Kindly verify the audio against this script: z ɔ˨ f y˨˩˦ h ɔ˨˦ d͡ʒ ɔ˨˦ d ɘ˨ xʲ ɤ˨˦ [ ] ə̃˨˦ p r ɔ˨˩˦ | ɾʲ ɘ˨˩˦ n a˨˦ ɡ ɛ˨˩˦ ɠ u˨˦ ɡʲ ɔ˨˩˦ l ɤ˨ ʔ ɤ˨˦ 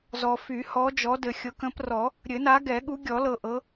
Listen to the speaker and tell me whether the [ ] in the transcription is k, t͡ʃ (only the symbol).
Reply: k